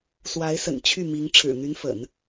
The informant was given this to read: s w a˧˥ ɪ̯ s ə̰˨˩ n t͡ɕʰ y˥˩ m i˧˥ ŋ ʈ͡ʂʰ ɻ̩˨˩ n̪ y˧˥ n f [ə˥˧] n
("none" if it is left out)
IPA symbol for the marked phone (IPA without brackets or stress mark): ə̰˨˩˦